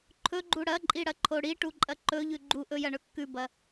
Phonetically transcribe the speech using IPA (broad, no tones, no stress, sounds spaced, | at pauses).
ǃʰ ɵ ɡ͡ǃ u ɽ ɐ ǃʼ i ɽ ɐ ǃʰ o ɽ i ʈ u ǃʼ ɐ ǃ ɵ ʎ ʉ ɡ͡ǃ u ʔ ɵ j ɐ ɳ ɵ kː ʉ b ɐ